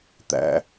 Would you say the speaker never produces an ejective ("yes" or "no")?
yes